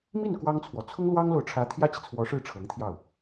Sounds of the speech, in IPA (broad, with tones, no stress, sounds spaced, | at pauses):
m i˥˩ n k w ɑ˥ ŋ t͡sʰ w ɔ˨ t͡sʰ ʊ˥ ŋ l w ɑ˥ ŋ l o˨ ʊ̯ ʈ͡ʂʰ ä˧˥ t̪ʰ j ä˥ t͡ɕ i˨ t͡sʰ w ɔ˧˥ ʂ ɻ̩˥˩ ʈ͡ʂʰ ɤ˧˥ ŋ t̪ʰ j ɑ˥˩ ʊ̯